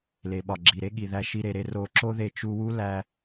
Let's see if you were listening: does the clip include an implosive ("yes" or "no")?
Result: yes